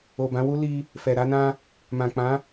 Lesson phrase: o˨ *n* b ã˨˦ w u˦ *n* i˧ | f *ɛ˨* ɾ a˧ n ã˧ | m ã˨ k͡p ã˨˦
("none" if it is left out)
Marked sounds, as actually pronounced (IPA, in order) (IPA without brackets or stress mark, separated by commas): none, l, ɛ˨